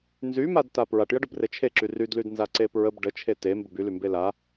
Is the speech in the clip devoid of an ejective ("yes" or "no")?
yes